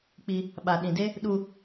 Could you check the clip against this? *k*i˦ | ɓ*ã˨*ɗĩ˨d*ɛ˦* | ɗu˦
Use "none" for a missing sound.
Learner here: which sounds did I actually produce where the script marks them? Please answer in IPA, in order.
k͡p, a˨, e˦

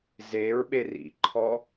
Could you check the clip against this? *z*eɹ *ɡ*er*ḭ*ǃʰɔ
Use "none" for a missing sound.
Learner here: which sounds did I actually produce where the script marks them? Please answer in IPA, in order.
z, ɓ, ḭ

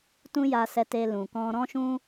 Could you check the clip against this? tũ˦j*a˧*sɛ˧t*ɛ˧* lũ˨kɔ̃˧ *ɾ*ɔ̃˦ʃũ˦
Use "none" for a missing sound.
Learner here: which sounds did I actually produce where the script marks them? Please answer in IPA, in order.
a˧, e˧, ɾ

